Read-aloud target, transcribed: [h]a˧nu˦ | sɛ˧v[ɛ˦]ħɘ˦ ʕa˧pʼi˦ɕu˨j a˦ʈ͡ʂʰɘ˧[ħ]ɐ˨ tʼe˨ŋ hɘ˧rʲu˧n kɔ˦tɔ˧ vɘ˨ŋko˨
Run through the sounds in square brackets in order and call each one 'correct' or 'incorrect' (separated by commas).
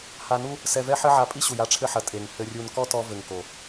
correct, correct, correct